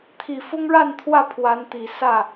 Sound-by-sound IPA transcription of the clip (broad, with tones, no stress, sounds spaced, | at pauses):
t̪ʰ i˨˩ f ʊ˦ ŋ ɻ a˥˨ n t̪ʰ w ä˥˨ pʰ w a˨˦ n t̪ i˨˩ s ä˥˨